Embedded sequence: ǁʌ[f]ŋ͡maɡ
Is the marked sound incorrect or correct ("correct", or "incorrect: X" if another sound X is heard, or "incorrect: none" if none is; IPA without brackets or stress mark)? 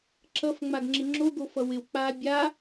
correct